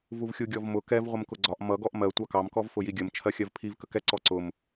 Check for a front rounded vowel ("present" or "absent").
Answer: absent